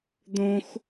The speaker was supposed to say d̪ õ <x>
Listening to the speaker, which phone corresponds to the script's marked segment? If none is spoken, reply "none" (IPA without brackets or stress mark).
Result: x